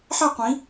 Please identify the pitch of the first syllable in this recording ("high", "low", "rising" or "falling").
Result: falling